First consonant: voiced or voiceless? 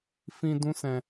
voiceless